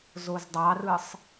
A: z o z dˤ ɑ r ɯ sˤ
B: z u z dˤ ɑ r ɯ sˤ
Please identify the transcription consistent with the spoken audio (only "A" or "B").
A